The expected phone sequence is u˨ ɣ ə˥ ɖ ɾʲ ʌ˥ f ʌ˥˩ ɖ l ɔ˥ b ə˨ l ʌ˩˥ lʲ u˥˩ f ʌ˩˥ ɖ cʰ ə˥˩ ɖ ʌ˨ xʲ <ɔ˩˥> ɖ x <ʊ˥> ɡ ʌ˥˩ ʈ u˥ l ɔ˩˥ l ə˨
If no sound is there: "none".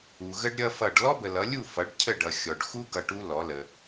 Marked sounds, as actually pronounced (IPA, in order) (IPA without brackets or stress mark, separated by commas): ɔ˨, u˥